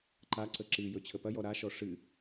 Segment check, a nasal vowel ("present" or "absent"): absent